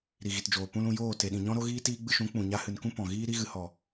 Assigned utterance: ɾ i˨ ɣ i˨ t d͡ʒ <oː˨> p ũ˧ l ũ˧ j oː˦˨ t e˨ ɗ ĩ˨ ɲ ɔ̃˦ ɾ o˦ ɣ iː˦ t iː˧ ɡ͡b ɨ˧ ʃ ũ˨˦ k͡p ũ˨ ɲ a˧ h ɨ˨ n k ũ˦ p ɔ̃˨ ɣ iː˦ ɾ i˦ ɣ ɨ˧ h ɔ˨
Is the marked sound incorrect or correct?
correct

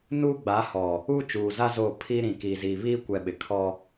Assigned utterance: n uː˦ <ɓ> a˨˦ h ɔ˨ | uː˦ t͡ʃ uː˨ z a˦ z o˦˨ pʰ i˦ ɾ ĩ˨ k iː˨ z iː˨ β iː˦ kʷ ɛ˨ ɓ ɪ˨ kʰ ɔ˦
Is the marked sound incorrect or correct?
incorrect: ɡ͡b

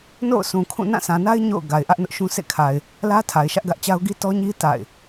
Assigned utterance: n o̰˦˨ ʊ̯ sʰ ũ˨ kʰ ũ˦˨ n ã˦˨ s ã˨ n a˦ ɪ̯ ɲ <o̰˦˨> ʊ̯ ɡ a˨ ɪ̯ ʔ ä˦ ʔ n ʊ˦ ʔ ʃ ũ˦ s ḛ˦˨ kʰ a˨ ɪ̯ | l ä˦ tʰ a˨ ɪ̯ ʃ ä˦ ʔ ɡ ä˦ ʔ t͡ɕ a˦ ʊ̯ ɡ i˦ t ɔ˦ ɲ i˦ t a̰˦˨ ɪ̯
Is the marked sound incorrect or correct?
correct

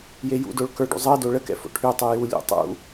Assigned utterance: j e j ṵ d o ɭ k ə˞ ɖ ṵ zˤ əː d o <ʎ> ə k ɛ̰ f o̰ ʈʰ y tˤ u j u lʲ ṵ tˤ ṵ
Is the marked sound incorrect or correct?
incorrect: ɭ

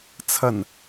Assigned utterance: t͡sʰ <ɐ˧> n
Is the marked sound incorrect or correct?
incorrect: ɐ˨˩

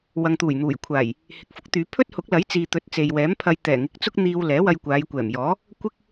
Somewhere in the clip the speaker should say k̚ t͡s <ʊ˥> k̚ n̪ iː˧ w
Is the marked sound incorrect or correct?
correct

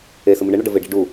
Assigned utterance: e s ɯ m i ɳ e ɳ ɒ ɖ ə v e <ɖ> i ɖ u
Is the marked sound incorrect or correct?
correct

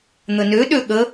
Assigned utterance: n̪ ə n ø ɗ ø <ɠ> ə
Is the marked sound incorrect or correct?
correct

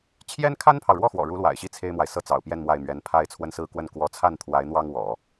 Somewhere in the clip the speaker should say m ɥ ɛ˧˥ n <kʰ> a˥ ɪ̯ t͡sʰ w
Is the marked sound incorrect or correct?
incorrect: pʰ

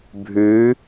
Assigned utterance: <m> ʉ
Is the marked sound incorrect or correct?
incorrect: bʱ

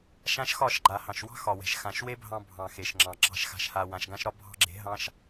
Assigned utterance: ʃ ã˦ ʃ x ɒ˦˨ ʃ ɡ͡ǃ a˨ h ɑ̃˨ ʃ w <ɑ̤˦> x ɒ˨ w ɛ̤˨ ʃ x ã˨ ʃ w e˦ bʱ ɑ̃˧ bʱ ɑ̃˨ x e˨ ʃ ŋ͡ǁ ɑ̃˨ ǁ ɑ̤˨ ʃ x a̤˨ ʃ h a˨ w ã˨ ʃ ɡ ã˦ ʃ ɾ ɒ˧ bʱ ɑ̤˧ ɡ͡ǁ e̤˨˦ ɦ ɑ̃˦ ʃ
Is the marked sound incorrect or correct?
correct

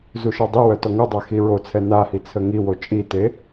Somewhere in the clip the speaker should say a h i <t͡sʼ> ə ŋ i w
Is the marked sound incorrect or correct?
incorrect: t͡sʰ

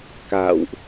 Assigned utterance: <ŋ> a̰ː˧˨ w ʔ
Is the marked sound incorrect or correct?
incorrect: k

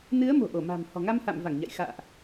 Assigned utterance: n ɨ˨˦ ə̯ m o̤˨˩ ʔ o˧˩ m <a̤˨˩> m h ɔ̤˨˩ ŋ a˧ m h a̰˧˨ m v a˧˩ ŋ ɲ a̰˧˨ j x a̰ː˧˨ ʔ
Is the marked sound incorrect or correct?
correct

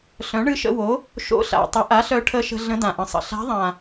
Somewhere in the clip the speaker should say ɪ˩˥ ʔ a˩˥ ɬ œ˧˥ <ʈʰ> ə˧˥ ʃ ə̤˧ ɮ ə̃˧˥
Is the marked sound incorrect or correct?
correct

